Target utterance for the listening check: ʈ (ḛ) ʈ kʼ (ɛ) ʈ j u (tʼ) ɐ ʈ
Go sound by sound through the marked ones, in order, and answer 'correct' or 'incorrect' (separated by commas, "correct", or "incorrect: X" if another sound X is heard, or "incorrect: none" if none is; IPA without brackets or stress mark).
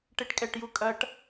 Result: incorrect: e, correct, incorrect: kʼ